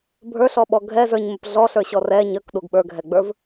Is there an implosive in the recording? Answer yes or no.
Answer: yes